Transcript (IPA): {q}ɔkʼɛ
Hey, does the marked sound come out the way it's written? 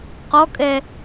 yes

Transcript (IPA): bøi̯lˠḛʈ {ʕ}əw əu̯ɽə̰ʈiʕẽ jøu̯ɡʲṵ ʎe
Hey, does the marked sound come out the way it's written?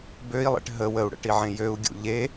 no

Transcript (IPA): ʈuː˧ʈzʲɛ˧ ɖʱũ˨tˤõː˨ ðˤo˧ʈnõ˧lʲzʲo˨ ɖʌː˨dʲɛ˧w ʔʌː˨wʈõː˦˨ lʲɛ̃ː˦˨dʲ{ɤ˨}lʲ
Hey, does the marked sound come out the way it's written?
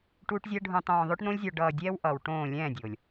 no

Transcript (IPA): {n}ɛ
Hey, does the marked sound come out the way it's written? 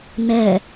yes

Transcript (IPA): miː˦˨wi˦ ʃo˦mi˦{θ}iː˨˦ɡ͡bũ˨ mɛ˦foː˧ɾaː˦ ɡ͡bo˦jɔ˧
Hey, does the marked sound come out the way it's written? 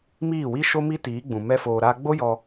no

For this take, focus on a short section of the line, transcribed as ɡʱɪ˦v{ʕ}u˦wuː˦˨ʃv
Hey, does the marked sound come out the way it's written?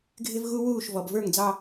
no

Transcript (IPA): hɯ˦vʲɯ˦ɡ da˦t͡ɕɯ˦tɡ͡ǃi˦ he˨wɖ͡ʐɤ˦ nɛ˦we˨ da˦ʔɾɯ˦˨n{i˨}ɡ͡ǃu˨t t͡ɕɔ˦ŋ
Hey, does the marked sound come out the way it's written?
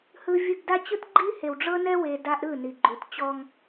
yes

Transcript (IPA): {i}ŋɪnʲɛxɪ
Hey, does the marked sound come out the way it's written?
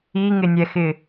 yes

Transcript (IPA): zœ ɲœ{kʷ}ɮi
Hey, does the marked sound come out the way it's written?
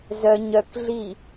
no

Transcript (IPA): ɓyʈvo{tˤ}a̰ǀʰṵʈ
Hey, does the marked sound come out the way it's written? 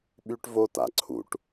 no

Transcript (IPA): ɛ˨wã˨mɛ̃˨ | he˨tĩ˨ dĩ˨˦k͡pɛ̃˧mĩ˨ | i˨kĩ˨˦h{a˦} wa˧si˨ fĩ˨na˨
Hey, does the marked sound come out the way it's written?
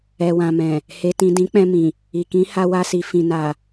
no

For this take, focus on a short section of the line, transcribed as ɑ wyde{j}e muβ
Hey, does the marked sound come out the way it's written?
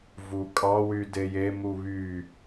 yes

